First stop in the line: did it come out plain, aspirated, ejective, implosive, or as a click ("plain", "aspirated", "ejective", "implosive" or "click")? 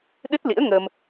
implosive